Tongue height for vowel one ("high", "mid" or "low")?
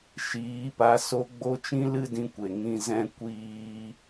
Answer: high